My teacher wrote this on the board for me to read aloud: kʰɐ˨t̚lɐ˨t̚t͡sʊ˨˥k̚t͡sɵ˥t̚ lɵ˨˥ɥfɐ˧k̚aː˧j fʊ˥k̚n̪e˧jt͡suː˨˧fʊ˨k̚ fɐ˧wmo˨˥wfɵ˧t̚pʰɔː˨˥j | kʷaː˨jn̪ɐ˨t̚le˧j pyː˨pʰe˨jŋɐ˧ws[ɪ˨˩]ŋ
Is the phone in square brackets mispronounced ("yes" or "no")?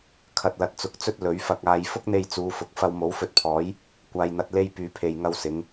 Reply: yes